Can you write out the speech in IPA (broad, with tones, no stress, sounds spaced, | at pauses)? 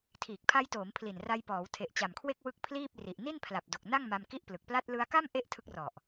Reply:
tʰ iː˨˩ k̚ pʰ a˦˥ j t oː˩˦ m pʰ l i˨˩ n r a˧ j p ɔː˩˦ w tʰ e˨˩ ʔ t͡ɕ a˨˩ m kʰ w e˥˩ k̚ w ɯ˦˥ k̚ pʰ l iː˥˩ p̚ r i˨˩ ʔ n i˥˩ n pʰ l a˨˩ p̚ d o˨˩ k̚ n a˥˩ ŋ m a˧ m k i˥˩ ʔ p l ɯ˨˩ k̚ p l a˥˩ t̚ l ɯ˧ a̯ k a˥˩ m ʔ e˥˩ ʔ tʰ ɯ˦˥ k̚ r ɔ˨˩ ʔ